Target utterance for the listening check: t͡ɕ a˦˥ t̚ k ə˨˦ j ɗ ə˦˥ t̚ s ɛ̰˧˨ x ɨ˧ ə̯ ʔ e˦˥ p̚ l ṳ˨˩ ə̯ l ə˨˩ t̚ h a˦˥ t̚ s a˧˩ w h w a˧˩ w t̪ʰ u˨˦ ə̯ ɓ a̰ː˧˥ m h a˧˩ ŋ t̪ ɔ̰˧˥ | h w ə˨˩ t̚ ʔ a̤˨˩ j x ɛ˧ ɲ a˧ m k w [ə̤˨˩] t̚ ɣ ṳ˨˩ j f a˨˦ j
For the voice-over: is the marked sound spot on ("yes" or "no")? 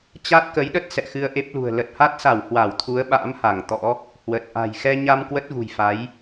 no